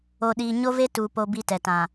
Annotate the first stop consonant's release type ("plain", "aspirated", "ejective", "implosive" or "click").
implosive